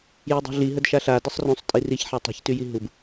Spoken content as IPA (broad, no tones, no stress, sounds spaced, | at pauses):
j ø dˤ i̤ ɮ i ɦ ə d ʃ a ɬ a d ə sˤ r ũ sˤ tʼ i r i ç ħ a tˤ i̤ ç t y j i ɦ u b